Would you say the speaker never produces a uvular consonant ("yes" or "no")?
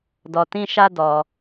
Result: yes